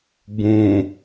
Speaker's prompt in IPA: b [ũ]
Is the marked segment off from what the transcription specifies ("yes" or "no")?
no